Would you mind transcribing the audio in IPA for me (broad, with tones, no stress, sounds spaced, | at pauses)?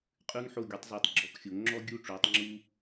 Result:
qʼ ʉ˧ ŋ ħ o˧˩ ɡʲ o˩˧ tˤ z ɔ˧˩ tˤ ɡ͡ǁ ɔ˧˩ k xʲ o˩˧ ŋ͡ǁ ɔ˥ ɡʲ u˥˧ ʈ͡ʂ o˩˧ tˤ ŋ͡ǁ u˧